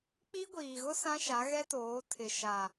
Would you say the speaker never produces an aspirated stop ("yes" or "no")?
no